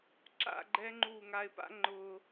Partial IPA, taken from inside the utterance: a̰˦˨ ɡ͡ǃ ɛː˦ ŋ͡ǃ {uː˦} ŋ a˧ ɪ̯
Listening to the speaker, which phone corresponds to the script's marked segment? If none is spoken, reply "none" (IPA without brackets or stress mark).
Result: uː˦˨